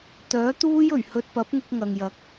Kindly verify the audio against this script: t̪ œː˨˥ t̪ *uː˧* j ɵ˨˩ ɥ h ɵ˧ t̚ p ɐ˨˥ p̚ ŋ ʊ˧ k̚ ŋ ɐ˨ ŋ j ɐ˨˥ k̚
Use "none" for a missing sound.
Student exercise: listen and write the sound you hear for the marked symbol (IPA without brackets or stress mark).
uː˥